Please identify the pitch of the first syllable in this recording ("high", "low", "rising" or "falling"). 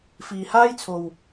low